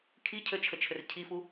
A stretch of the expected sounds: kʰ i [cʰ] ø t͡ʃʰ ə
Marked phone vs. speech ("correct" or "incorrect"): correct